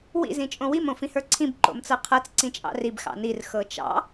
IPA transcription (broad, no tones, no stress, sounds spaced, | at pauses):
w ḭ z ĩ t͡ʃʼ õ w i m õ f ĩ h ə˞ ǀʰ ĩ b ǃ o̰ m t͡s ɤ qʰ ɤ t͡s ǀ ĩ t͡ʃʼ ɑ̰ r i b x ɑ̰ n i r x ɤ t͡ʃ ɑ̰